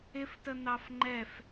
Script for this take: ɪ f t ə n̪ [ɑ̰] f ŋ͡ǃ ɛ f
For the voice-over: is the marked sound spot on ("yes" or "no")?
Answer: no